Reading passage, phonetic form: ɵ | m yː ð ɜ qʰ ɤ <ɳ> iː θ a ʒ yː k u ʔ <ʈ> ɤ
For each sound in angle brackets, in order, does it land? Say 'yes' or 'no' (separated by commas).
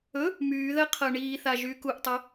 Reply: yes, no